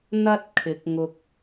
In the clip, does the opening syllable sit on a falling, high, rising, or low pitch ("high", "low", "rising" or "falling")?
high